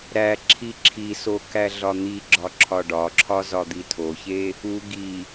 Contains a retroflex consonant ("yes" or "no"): yes